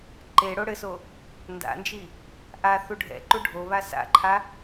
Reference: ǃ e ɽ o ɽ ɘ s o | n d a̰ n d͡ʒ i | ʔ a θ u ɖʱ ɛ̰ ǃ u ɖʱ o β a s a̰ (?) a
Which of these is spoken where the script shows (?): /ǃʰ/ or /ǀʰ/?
ǃʰ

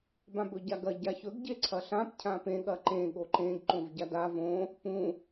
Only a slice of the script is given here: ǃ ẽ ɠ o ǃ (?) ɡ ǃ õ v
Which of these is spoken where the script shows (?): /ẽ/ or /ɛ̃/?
ẽ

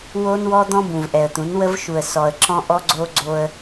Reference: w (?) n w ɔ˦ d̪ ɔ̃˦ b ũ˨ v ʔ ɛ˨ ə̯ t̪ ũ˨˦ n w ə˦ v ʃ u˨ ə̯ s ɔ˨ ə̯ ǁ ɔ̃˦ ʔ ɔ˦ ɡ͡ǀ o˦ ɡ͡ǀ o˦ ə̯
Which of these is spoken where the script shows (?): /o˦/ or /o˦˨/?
o˦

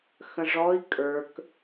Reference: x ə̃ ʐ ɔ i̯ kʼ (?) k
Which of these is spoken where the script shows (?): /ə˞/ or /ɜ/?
ə˞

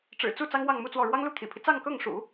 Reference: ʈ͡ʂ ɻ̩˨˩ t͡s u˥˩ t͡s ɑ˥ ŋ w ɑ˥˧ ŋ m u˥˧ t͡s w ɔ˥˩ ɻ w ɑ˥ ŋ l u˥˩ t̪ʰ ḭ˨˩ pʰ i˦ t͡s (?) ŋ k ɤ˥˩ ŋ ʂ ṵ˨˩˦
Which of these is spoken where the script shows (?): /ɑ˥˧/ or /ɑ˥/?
ɑ˥˧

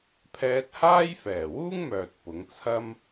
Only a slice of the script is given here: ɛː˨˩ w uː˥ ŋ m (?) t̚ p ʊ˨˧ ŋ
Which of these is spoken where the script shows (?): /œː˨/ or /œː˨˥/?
œː˨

